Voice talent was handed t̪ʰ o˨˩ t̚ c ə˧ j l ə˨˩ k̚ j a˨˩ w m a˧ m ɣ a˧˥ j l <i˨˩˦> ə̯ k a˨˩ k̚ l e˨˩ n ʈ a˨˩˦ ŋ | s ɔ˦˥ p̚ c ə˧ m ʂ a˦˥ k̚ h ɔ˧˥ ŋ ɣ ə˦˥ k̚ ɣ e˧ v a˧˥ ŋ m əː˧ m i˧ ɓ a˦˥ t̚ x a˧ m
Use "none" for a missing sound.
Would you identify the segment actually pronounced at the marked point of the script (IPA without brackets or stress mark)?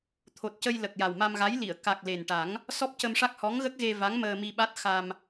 i˨˩˨